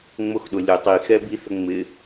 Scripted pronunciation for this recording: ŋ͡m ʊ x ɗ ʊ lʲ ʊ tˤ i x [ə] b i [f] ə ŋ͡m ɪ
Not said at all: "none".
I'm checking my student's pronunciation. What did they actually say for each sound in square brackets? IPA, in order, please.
ɛ, θ

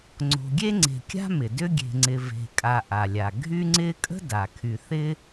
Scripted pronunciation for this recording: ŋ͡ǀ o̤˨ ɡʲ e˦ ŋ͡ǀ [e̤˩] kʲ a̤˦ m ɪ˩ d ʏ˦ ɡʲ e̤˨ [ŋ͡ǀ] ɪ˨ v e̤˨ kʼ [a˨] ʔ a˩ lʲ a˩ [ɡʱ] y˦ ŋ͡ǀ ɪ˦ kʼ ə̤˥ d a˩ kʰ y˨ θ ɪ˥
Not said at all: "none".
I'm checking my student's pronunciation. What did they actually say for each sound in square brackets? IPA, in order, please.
e̤˨, ŋ͡ǀ, a˨, ɡʱ

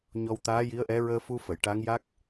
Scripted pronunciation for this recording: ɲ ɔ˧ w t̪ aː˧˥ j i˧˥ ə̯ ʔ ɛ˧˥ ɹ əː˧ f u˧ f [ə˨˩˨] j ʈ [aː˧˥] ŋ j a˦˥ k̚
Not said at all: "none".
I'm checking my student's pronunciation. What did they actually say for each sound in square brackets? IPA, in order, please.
ə˨˩˨, a˧˥

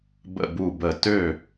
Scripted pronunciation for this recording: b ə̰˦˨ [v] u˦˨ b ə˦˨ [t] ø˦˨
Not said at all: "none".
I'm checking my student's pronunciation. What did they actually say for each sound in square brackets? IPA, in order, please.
b, t

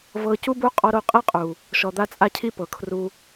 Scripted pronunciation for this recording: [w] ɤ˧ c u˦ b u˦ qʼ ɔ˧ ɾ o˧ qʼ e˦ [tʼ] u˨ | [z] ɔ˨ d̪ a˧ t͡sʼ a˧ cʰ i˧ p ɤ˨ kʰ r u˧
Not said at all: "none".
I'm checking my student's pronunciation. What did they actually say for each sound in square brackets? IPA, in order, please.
v, qʼ, ʃ

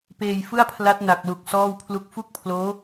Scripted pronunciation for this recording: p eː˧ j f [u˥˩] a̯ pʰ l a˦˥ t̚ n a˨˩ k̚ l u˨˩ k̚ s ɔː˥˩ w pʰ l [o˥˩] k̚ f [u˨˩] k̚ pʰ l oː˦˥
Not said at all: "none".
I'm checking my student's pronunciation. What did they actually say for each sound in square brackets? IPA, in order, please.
ɯ˥˩, u˥˩, u˥˩

